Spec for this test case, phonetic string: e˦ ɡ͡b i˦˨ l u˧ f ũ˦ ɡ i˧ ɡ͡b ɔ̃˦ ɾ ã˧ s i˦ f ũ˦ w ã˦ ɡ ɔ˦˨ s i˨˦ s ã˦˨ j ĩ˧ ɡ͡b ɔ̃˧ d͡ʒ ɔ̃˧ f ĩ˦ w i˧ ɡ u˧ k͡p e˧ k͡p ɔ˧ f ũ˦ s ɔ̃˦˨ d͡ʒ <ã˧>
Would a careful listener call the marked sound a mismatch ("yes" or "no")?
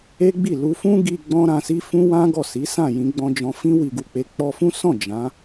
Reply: yes